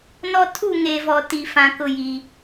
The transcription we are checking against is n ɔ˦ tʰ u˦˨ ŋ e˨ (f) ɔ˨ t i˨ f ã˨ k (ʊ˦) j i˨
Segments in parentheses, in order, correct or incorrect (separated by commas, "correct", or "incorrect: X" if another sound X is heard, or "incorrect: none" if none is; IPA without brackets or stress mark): incorrect: v, correct